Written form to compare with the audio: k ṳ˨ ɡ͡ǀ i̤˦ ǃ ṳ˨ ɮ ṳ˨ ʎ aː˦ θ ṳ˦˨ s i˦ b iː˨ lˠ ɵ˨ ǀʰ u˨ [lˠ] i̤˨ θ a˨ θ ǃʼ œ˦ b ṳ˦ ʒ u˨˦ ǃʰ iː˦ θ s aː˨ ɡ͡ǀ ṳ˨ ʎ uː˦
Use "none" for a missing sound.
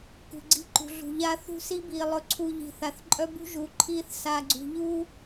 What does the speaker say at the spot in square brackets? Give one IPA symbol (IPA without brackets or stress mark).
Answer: ʎ